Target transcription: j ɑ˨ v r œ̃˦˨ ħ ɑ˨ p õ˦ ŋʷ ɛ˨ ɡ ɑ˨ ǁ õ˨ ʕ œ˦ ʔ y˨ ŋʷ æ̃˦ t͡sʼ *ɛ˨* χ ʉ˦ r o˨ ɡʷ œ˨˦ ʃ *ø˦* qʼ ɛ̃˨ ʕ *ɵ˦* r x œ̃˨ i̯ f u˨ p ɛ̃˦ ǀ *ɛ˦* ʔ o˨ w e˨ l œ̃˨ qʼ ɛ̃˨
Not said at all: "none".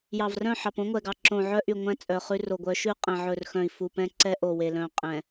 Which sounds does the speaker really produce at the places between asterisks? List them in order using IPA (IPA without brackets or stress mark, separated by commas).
œ˨, ʉ˦, ɵ˨, ɛ˦